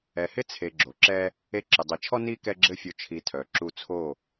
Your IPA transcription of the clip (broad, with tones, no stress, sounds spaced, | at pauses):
ɛ˨ h ɪ˦ t͡sʰ e˧ ɡ͡ǁ o˨ ǁ ɛ˦ | e˧ ǁ ɪ˨ dˤ i˨ t͡ʃʰ ɔ˦ n i˦ k ɛ˦ ɡ͡ǁ ɘ˦ fʲ o˧ t͡ʃʰ i˨˦ tʰ œ˨ ǁ u˧ t͡sʰ o˦˨